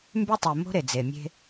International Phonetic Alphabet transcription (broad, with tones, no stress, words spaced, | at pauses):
mby˦tˤe˨mo̤˦ ɾe˨d͡ze˨ mʲe̤˦